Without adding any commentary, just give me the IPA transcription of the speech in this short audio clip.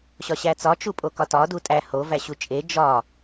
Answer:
ɕɒɕæt͡sɒ t͡ʃupʼokɒtɒ dutʼæ ho væɕut͡ʃʼe d͡ʒɒ

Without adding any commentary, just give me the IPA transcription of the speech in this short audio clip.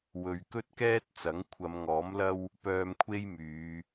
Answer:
wɵ˨ɥkɵ˥t̚kɛː˥t̚t͡sɐ˨˥ŋ kʷʰɐ˨˧mŋɔː˨˥mlɐ˥w | pœː˧mkʷʰe˥jmyː˨˧

